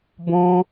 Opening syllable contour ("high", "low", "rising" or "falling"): high